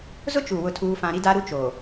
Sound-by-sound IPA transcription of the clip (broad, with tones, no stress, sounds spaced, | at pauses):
z ʊ˦ t͡ʃ u˨ w ʊ˦ tʰ uː˦ f ã˦ ɾ i˦ d a˦ ɾ u˦ t͡ʃ o˨